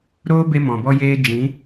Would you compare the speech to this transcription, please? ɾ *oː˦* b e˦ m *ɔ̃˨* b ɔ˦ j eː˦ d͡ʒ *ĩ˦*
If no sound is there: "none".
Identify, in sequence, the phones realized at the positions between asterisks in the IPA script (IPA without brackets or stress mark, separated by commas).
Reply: oː˦, ɔ̃˨, ĩ˨˦